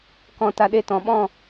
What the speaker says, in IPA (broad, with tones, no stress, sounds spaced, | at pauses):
k ɔ̃˧ t a˧ ɗ e˧ t ɔ̃˧ ɓ ɔ̃˥˧